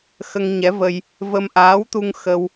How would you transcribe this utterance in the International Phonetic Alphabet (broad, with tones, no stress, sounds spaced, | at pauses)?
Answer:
x ə˧ ŋ ɲ ɛ˧˥ v ə˧ j | v ə˧ m ʔ aː˧˥ w t̪ u˧ ŋ x ə˧ w